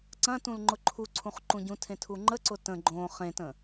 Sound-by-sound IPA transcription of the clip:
ǀɐ̃ tũlŋ͡ǃʊǃʰuǀʰũχ ǃũɟũ tʰẽtʰuŋ͡ǃəǀʊ tə̃ ɡ͡ǃõ χẽtə̃

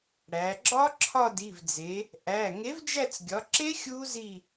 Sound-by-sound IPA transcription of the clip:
ɽæ˩˧ ɡ͡ǁɒ˦˥ǁʰɒ˦˨di˩˧˩vd͡ze˩˧ | ʔæ˩˧˩ ŋe˨˥vd͡ʒæ˦˨t͡sɡʲɒ˩˧ǁe˦˥ xʲu˦˥zi˦˨

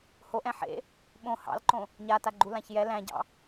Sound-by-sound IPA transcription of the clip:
hoʔɛ̃ ħḛ | ɓõ hɑ̰lǃõ | ɲataɡ͡ǃulãç jɛ læ̃ɟɑ̰

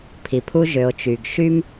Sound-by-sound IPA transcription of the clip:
pʰi˩pʰu˥ ʒø˩o̯ t͡ʃy˩ɡ ʃy˥m

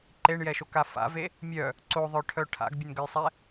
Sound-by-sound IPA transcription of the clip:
ǃeɳjɛʃoka fa̰ve | mʲœ | ǀoðˤœʈʰœ ʈʰa̰ɡbʲənɡəjsˤɛ

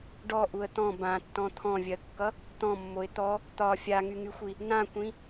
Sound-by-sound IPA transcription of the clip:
ɖɔʔuə̯ t̪ɔ̃ bãtːɔ̃ t̪ʰɔ̃vʲɜkːʌ | t̪ɔ̃mːoɪ̯ t̪ɔ | t̪ɒ fʲaŋyŋyxʷi | nãkʷĩ

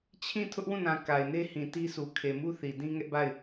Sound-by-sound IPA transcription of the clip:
t͡ɕʰĩ˦˨ tʰʊ˦ʔwũ˦˨nã˨ ka˨ɪ̯ne˦hĩ˨ ti˦su˨ kʰe˨mu˦ θi˨dĩ˦ŋɛ˦ʔba˦˨ɪ̯

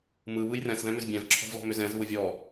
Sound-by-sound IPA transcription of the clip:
mɯ βɯjrɛ̃s ðɛ̃mʏzbʲɛ̃v ǁʰɔ̤vlɔ̤mʏzɛ̃z βʊvʲɔ

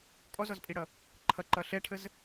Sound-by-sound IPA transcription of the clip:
kʼɔzɔzpʼiɽʌ | ǃʰʌǃʌ ɬɛʈʰəz

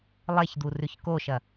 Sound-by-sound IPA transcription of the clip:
lˠeçd̪urʉç koʃɐ

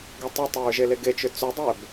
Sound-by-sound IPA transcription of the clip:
ɡɛtˤʏtˤeɹ ʒeleɡet͡ʃʏ t͡sʏdˤɛb

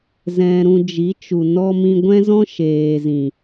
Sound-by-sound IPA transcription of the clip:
zɛ̃˧ɾũ˧d͡ʒi˨˦t͡ʃu˨ nɔ˦ mĩ˧ɡʷɛ̃˦zɔ̃˦ ʃeː˨zĩ˨

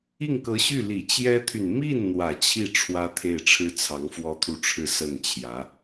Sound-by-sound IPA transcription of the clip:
i˥˩ŋkɤ˧˥ɕy˥˩ li˨˩ t͡ɕjɛ˥t̪ʰy˨n mi˥˩n n̪wä˨˩t͡ɕʰi˥˩ ʈ͡ʂʰwä˥ t̪ʰe˥˩ɪ̯ʈ͡ʂʰɻ̩˥ t͡sʰɑ˧˥ŋfwɔ˥t̪ʰu˥˧ʈ͡ʂʰɻ̩˥˧ sə˥˩nt͡ɕʰjä˧˥

